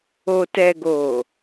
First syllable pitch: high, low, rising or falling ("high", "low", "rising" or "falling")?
low